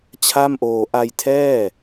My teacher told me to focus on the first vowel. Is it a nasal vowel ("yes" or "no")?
no